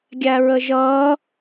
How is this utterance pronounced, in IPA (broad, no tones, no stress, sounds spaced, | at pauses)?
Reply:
ɡʲ æ ɹ ə ʒ ʌː